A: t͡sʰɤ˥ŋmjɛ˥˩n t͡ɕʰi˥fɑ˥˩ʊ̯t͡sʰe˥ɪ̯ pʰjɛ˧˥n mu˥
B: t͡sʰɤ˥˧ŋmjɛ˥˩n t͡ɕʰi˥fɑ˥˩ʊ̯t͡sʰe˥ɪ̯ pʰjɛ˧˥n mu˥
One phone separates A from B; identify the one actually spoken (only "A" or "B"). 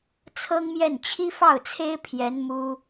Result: A